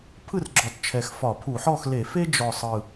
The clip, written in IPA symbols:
pʰ ɯ˥˨ r ɡ͡ǁ ɔ˨˩ t t͡ʃʰ ɛ˨˩ x f ɒ˧˩˧ pʰ u˧˩˧ ħ ɔ˥˨ x l e˧˩˧ f e˥ d͡ʒ ɔ˨˩ sˤ ɯ˨˩

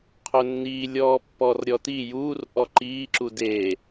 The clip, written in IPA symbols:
qʰ ɵ nː iː lʲ ɔː pː ɔ r ɾʲ ɔ t i j uː r ʔ ɔ ǃ iː ǁ u d e

